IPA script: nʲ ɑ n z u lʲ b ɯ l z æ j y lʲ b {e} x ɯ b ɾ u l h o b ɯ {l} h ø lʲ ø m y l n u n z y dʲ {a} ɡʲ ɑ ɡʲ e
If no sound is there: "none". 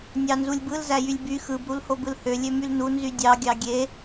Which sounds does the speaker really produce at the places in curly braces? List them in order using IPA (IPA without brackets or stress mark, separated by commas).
y, l, ɑ